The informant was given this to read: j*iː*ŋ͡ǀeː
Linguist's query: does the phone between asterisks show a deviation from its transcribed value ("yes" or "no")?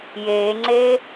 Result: yes